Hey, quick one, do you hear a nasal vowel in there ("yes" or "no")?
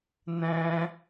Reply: yes